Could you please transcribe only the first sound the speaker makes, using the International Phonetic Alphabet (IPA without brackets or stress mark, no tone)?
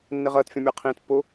nː